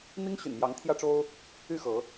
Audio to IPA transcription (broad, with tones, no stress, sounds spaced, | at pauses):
n̪ i˦ ŋ ɕ y̰˨˩ n m j ɑ˨˦ ŋ t̪ʰ j ä˦ ʈ͡ʂ o˦ ʊ̯ | y˥˨ x ɤ˨˦